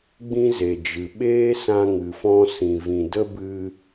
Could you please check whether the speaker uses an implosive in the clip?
yes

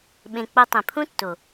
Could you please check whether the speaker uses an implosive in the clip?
yes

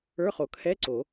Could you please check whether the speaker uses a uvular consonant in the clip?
yes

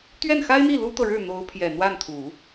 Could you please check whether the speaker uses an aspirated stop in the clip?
yes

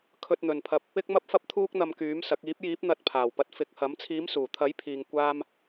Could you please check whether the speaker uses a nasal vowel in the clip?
no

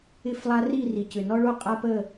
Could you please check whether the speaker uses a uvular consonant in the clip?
yes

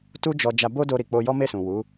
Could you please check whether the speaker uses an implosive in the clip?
no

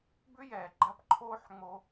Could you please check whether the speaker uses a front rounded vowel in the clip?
yes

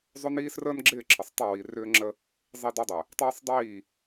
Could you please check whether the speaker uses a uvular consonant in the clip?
no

